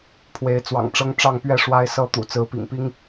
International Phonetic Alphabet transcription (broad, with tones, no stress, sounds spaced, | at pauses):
pʰ w e˨˦ ɪ̯ t͡s w ɑ̰˨˩ ŋ ʈ͡ʂ ɤ˦ ŋ ʈ͡ʂ ɑ˥˨ ŋ p ɥ ɛ˥˨ ʂ w a˦ ɪ̯ s ɤ˦ t̪ ṵ˨˩ t͡s ɹ̩˨˦ p ḭ˨˩ ŋ p i˦ ŋ